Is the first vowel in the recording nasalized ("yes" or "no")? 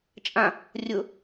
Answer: yes